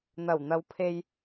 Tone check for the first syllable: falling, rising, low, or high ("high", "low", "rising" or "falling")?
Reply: low